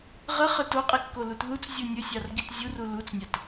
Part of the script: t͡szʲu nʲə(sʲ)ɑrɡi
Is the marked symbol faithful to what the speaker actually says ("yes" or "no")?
yes